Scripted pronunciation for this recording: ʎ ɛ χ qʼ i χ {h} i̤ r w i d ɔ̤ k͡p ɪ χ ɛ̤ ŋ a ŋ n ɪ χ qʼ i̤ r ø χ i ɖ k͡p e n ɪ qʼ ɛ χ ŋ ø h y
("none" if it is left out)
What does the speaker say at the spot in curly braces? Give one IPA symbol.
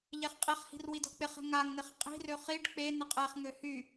h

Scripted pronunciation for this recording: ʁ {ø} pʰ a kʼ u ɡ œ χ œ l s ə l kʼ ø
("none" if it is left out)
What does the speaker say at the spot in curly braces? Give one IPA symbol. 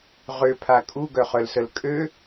ø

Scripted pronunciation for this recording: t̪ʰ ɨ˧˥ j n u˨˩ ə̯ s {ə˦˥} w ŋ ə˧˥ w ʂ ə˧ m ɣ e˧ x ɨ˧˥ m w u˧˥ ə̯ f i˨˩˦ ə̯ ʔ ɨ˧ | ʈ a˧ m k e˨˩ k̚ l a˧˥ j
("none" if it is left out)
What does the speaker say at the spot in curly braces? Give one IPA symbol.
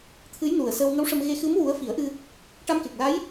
ə˧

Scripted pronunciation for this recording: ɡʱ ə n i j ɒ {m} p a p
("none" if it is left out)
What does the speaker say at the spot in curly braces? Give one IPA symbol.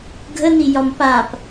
m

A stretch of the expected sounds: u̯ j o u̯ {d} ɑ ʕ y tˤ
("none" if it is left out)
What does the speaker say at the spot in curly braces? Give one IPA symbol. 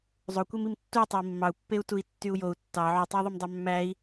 tː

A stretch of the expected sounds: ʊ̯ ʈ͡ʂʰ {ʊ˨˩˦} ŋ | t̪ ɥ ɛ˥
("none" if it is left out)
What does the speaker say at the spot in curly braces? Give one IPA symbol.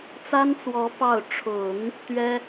ʊ˨˩˦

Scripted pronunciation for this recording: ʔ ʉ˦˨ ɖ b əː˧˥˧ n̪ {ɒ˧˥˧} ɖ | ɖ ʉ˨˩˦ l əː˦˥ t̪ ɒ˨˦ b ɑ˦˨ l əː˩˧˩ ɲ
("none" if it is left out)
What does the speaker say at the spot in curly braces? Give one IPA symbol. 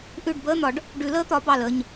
ɒ˨˩˦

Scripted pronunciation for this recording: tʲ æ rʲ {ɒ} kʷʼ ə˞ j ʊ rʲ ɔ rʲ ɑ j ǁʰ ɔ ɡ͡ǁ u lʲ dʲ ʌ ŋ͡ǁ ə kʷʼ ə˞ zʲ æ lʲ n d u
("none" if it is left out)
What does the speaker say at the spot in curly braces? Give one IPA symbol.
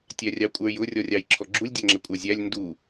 ɑ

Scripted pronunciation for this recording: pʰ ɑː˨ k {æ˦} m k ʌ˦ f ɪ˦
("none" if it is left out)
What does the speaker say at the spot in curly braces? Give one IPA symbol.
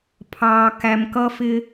æ˨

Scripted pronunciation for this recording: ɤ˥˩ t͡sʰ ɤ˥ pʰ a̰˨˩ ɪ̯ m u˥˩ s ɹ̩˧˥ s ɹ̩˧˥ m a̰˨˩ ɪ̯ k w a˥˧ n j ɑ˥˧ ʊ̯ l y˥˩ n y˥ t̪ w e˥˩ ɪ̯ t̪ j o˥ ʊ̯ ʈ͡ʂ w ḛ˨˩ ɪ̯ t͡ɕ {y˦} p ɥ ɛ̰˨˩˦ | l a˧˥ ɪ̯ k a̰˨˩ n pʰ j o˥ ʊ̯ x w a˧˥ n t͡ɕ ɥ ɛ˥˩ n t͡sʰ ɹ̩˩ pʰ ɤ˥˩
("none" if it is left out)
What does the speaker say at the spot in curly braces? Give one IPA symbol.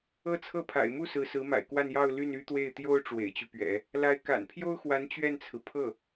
y˦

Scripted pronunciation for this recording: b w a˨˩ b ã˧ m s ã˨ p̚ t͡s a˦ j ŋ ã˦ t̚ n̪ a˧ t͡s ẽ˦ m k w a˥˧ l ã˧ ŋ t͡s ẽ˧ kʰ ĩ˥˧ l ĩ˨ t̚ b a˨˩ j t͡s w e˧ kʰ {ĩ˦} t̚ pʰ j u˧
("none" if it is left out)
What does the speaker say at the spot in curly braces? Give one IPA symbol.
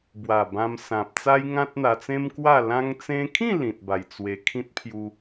ĩ˦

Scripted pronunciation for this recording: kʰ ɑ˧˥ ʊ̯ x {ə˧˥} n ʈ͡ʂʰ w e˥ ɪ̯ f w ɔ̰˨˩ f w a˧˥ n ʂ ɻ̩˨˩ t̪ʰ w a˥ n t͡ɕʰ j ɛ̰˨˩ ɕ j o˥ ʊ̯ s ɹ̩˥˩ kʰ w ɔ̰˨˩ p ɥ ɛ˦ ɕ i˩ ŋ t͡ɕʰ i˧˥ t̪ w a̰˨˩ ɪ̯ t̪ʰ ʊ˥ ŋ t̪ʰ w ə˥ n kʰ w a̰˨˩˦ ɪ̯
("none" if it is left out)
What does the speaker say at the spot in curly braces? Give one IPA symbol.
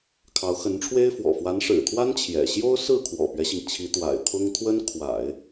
ə˧˥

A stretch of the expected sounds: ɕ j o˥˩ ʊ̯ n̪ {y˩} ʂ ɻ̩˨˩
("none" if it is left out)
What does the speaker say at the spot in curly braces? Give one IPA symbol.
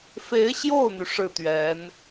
y˩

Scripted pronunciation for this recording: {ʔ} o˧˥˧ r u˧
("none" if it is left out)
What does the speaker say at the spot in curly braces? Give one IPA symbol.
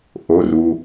ʔ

